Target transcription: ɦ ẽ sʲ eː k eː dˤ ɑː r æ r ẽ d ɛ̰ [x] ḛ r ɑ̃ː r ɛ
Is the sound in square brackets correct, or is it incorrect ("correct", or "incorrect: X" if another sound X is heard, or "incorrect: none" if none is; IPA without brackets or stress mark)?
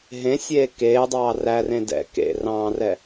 incorrect: k